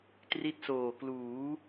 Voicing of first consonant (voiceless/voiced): voiceless